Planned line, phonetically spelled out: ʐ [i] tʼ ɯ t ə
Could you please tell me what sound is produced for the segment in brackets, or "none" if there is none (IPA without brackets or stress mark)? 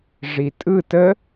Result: i